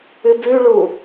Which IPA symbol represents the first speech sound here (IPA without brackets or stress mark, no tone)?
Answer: ɨ